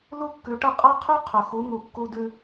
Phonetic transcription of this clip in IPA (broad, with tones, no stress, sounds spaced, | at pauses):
l u˥ kː ʉ˩˥ ʈ ɐ˥˩ qʼ a˥ qʰ ʉ˥ qʰ ɵ˩ x u˩˥ ŋ u˩ kː u˧ d ʉ˧